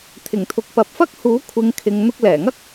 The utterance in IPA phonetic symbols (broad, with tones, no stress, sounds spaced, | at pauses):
t̪ʰ ɪ˨˩ ŋ t̪ʰ ʊ˨ k̚ p ɐ˨ p̚ f ɐ˥ k̚ h uː˨˥ kʷʰ ɪ˨˧ ŋ kʰ ɪ˨ ŋ n̪ ʊ˧ k̚ l ɛː˨˩ ŋ ɐ˥ k̚